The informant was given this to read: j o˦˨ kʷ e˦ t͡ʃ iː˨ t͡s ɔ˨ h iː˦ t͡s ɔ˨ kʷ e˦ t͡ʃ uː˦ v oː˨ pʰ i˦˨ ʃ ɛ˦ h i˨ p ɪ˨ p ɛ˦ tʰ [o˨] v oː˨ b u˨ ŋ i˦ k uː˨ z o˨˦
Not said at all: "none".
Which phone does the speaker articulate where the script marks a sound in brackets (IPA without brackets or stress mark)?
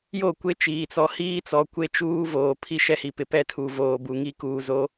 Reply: u˨